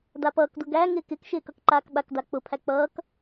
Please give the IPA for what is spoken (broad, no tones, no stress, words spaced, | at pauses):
dapʌːkdʊ ɡæ ŋɪːkɪkʃɪː kʌkǃaːkɓakda k͡pʊpʰæ k͡pʌːk